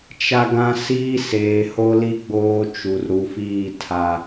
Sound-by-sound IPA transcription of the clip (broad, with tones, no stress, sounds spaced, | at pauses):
t͡ʃ a˦ ɡ ã˦ s iː˦ s eː˨ h o˦ l i˦ ɡ͡b oː˦ t͡ʃ u˨ r ɾ u˨ f iː˦˨ tʰ a˨